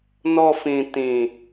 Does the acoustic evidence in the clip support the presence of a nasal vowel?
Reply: yes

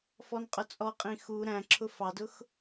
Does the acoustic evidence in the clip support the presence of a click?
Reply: yes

